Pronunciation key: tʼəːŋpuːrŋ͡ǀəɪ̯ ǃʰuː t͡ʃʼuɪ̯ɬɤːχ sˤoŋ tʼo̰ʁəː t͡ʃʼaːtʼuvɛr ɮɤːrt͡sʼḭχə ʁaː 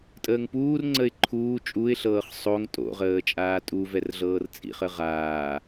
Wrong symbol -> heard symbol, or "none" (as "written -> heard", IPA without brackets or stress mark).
none